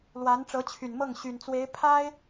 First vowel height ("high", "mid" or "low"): low